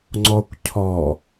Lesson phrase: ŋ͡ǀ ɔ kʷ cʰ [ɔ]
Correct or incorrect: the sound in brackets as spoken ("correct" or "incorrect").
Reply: correct